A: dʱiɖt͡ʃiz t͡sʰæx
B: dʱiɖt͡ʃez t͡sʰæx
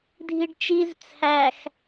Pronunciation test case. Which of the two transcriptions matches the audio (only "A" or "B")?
A